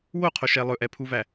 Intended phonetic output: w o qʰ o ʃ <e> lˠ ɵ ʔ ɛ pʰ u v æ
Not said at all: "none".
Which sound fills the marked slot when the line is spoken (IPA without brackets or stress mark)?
ɛ